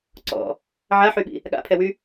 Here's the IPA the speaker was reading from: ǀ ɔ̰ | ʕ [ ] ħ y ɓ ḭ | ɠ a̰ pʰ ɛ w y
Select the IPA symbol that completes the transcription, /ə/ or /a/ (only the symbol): a